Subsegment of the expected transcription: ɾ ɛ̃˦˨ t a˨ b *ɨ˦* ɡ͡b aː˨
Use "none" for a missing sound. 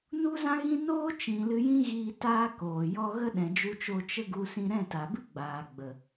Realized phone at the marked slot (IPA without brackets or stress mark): ɨ˦